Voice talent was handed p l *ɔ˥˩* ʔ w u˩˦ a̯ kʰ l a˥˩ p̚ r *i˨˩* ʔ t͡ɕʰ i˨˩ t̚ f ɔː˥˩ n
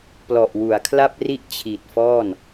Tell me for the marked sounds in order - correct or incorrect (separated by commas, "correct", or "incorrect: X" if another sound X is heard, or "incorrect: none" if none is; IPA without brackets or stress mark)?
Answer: incorrect: ɔ˨˩, incorrect: i˥˩